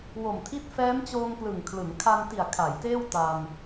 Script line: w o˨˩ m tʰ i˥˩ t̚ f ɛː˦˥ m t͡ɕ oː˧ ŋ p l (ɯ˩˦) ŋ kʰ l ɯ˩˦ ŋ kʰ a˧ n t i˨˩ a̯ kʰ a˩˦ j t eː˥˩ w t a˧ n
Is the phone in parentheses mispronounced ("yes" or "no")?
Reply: yes